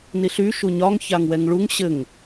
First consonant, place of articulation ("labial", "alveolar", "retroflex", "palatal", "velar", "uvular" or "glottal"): alveolar